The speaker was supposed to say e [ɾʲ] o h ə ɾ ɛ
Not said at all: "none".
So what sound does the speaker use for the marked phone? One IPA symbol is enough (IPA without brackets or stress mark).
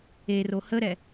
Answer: r